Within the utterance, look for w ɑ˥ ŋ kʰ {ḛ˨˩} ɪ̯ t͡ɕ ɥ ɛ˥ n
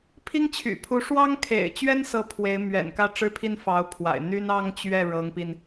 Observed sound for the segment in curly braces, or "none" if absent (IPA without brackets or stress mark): ḛ˨˩